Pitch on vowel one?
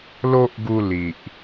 high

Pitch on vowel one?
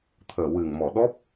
low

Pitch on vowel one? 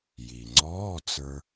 low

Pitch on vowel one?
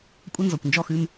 high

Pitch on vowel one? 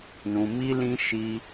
low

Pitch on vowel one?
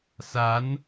rising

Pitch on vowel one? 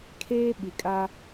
high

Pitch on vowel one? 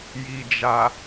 low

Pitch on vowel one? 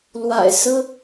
low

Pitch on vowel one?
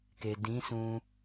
low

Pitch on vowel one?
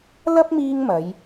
high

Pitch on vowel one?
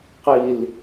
low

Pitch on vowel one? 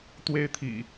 high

